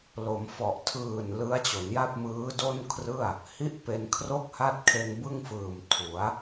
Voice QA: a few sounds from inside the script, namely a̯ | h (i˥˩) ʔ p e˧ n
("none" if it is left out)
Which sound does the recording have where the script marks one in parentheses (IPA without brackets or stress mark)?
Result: i˥˩